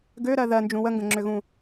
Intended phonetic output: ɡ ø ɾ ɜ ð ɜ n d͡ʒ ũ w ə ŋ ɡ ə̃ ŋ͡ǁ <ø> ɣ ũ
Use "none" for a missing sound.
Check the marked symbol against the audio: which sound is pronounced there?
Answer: ø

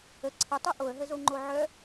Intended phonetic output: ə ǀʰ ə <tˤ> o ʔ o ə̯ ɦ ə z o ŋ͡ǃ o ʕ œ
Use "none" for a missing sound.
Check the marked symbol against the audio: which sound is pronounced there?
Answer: tˤ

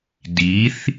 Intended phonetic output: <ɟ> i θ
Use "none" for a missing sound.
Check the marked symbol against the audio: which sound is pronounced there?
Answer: d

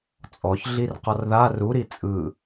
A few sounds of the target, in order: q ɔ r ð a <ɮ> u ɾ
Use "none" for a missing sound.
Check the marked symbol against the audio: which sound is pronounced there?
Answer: r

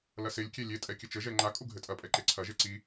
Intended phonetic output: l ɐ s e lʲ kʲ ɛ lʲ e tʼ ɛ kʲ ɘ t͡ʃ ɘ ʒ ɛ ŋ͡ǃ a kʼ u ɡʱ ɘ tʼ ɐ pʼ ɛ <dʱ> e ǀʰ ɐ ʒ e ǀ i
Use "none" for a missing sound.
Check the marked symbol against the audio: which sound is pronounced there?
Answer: ǃ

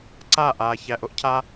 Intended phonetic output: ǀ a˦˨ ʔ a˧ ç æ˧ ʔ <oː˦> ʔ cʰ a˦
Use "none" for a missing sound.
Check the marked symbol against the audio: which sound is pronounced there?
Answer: o˦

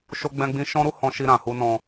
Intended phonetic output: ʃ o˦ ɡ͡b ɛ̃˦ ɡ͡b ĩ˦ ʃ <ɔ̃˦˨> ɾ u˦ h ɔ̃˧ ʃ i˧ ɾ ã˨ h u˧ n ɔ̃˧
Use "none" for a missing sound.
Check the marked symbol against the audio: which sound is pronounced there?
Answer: ɔ̃˦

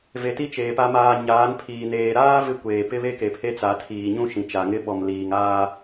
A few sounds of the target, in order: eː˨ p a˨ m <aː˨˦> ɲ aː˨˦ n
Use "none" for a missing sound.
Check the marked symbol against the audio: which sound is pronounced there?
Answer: aː˨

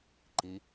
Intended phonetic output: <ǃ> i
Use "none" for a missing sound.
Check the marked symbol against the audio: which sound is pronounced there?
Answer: ǃ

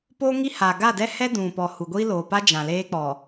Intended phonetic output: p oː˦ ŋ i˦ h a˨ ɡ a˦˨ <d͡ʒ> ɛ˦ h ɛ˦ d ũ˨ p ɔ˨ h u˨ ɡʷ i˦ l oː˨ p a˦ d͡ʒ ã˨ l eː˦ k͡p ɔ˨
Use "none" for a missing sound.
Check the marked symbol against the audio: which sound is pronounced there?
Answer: d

